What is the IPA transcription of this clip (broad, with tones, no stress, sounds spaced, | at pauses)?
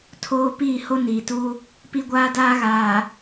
tʰ oː˦ p iː˦˨ h o˦ n iː˨ t u˦ | p i˦ ɡʷ aː˦ d aː˦ ɣ aː˨